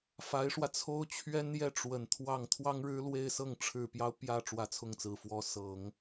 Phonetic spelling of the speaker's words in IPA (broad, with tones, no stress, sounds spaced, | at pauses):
f a˧˥ ɪ̯ ʂ w ä˧ t͡sʰ o˥ ʊ̯ t͡ɕʰ ɥ ɛ˥ n j ɛ˥˩ ʈ͡ʂ w ə˨˩ n t̪ʰ w ɑ˥˩ ŋ t̪ʰ w ɑ˥ ŋ ɻ ɻ̩˥ l w e˥˧ ɪ̯ s ɤ˥˩ ŋ ʈ͡ʂʰ ɻ̩˨˩ p j ɑ˦ ʊ̯ p j ä˥˩ ʈ͡ʂ w ä˧˥ t͡sʰ ʊ˥˩ ŋ t͡s ɹ̩˨˩ f w ɔ˧˥ s ɤ˨˩˦ ŋ